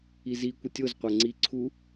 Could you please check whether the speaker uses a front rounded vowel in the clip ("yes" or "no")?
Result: no